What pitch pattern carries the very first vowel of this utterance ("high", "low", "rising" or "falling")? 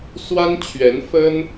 high